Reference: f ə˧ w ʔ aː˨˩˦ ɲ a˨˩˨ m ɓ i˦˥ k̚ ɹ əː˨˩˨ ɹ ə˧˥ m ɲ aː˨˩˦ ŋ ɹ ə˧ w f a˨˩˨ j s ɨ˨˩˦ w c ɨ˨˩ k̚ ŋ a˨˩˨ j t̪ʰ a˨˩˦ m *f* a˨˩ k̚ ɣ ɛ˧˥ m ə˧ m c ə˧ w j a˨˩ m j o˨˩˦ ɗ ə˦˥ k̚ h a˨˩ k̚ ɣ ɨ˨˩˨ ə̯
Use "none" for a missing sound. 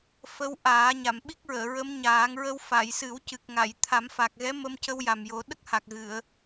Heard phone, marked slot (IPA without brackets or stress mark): f